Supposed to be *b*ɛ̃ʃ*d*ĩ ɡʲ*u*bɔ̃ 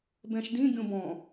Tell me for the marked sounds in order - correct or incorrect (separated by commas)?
correct, correct, incorrect